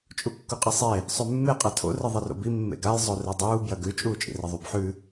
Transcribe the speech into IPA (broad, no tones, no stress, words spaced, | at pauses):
t͡ʃʼukːuqʼisˤe | sˤʉmːe qʼatʰo̰ rɨðˤiro̰bi mːḛɡaj zˤoredˤuː bjɐɡʉ t͡ʃʼuːt͡ʃʼḭrɐðˤub ħʉ